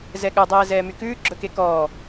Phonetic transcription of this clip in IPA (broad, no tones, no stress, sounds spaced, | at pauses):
z ɛ ɠ œ dˤ ɛː z ɛː m y k ʉː ɡ͡ǁ ɵ k e k ɔː